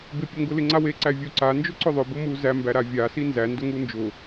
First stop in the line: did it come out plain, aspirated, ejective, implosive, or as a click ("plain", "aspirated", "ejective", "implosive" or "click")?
plain